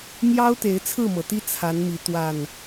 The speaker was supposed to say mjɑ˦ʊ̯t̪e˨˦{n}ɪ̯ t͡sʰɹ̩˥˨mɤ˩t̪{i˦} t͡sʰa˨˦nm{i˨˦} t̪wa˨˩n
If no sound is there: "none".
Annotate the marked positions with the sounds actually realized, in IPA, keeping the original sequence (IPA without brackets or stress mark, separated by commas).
none, i˦, i˨˦